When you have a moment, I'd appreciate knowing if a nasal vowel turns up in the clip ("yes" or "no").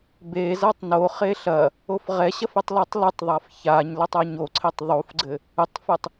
no